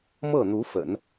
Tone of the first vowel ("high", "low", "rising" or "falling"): falling